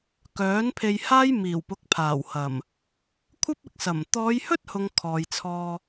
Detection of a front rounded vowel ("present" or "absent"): present